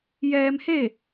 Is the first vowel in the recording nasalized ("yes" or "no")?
no